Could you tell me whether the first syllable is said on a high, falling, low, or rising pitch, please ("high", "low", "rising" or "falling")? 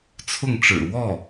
falling